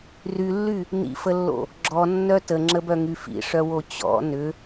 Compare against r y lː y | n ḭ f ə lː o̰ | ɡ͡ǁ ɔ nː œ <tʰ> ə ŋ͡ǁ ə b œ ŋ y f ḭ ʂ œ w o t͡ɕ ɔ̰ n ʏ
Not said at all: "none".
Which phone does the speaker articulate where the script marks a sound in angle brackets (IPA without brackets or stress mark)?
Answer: t